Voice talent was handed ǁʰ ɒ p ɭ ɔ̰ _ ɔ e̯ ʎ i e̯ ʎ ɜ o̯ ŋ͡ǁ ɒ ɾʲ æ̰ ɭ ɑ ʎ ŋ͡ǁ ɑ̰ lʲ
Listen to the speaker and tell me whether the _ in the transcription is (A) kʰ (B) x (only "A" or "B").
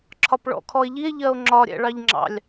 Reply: A